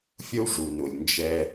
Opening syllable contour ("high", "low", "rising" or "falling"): high